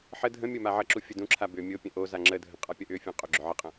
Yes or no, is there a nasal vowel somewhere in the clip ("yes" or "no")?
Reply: yes